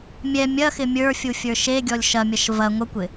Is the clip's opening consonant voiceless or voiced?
voiced